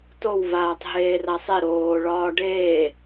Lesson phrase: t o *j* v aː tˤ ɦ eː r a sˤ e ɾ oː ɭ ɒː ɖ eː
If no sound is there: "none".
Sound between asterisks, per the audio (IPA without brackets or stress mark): w